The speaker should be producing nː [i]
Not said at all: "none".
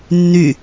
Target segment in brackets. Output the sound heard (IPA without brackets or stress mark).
y